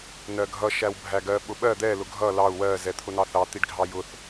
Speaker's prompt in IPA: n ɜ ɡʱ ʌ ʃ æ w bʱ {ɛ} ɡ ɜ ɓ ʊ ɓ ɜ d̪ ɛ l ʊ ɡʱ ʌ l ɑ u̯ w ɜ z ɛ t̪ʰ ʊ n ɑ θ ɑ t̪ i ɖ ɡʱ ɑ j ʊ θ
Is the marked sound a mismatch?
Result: yes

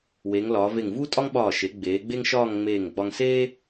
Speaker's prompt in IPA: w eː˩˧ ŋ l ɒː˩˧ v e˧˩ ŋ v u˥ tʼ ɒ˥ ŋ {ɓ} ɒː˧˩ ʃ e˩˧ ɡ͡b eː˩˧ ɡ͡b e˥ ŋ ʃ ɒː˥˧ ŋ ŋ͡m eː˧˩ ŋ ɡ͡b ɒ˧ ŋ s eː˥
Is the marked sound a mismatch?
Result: no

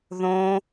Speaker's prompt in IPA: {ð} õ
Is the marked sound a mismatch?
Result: no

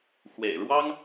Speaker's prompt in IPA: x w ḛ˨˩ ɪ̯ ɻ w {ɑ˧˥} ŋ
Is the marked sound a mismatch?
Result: yes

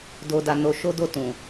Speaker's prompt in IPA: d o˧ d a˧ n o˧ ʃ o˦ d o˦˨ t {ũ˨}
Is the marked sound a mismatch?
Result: no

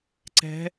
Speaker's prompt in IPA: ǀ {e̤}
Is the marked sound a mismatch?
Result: yes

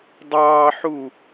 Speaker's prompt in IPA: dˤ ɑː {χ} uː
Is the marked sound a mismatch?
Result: yes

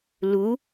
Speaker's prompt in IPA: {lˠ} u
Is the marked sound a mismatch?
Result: yes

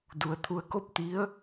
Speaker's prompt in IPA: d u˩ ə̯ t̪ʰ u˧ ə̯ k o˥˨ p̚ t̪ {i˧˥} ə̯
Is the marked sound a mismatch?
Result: no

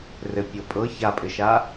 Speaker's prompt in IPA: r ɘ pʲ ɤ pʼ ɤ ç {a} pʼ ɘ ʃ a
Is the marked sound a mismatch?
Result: no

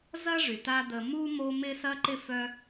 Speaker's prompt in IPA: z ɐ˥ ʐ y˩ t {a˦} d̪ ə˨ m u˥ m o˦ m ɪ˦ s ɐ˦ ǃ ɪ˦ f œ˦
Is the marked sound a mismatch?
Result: no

